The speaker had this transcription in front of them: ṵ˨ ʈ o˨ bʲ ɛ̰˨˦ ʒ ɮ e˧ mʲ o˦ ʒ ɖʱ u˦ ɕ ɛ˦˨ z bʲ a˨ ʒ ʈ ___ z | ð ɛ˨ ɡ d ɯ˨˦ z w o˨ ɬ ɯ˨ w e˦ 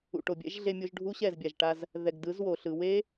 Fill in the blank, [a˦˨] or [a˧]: a˧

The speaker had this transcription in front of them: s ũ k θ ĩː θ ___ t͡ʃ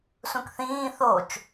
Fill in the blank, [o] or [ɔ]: o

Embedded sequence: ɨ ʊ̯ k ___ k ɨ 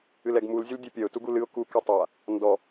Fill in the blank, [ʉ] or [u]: u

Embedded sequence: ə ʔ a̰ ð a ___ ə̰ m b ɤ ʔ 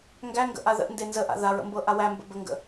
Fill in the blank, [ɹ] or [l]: ɹ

